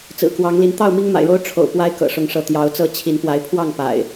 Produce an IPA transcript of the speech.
t͡sɹ̩˨˩kwɑ˨˦ŋ li˨˦n t̪ɑ˥˨ʊ̯mi˦ŋma̰˨˩ɪ̯ɻo˦ʊ̯ ʈ͡ʂʰo̰˨˩ʊ̯ pwa˦ɪ̯kɤ̰˨˩ʂʊ˨˦ŋʂɤ˨˦ t̪jɑ˨˦ʊ̯t͡sɤ˥˨ t͡ɕʰi˨˦n pwa˨˦ɪ̯pʰwɑ˥˨ŋ pa̰˨˩ɪ̯

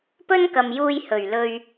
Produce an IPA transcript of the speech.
pɵ˥nkɐ˨mjuː˧j hɵ˨˩ɥlɵ˧ɥ

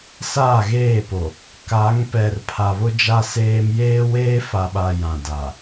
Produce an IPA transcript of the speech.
saː˦˨ɣeː˦˨po˨ | ka˨˦ŋpɛ˨r pʰa˨βʊ˦d͡ʒa˦seː˦m jeː˦weː˦fa˨ɓa˨ jã˨da˨

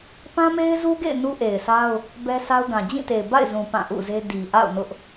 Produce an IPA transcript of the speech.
pã˦me˦ɪ̯zu˦ɡḛ˦˨ɪ̯ nu˦ʔe˨ɪ̯sa˦ʊ̯ | bɛ˦sa˦ʊ̯ɡã˨ d͡ʑĩ˦˨te˨ɪ̯ ba̰˦˨ɪ̯zũ˨ pã˦˨ʔṵ˦˨ze˦ di˨ʔa̰˦˨ʊ̯nʊ˦ʔ

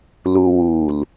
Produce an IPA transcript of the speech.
luwul

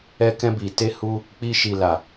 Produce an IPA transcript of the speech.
ɛ˧ kɛ̃˧bi˨ te˧hu˧ | k͡pi˧ʃi˨la˨

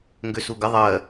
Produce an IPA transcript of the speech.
ŋɡøsuɡə ðˤɜ

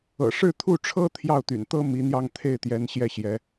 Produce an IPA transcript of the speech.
ɤ̰˨˩ʂɻ̩˥˧ t̪ʰu˥˩ʈ͡ʂʰɤ˥ t̪ʰjɑ˥˩ʊ̯t̪y̰˨˩nt̪ɤ˥ mi˧˥n̪jɑ˥˧ŋ t̪ʰe˥˩ɪ̯t̪jɛ˧˥n ɕjɛ˥˩ɕjɛ˧˥

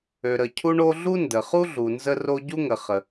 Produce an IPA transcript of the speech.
ø˩ɾə˩ cʰu˥ɳo˥ ɮu˥ndə˩χu˥ ɮu˩nzə˥ro˥ ɟu˥ŋə˩ χə˩

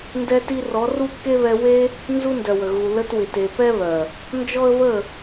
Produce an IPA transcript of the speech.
ndɛ˧ti˧rɔ˨˦ ru˦kːe˦βɛ˧ we˧ | nzu˧ndœ˨wə˨ ɣu˨ lə˧twɪ˨te˨ pɛ˦βœ˨ | nd͡ʒɔ˦ə̯βə˦˨

